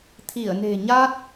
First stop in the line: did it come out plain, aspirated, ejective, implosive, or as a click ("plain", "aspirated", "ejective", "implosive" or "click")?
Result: aspirated